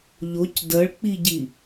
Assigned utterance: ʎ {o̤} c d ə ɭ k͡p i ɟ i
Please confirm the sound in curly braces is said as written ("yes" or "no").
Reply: no